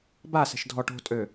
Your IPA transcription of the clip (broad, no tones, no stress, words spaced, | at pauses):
ba sɛ̤ʃdʱɔ ʈo̤tʼø